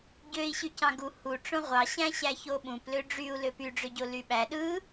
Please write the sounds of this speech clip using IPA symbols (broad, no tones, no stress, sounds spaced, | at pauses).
ɟ ø i̯ ɕ y c ɑ̃ ɡ u h u ʈ͡ʂ õ ʁʷ ɑ ɕ æ̃ ɕ æ ç o ɓ ũ p l ø ɖ͡ʐ y u̯ l ø p y ɖ͡ʐ ø ɟ o l y ɓ æ ɗ ɯ